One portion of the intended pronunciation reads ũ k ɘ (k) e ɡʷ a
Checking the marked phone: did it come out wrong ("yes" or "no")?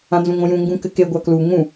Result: no